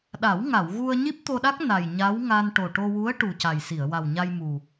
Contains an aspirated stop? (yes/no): no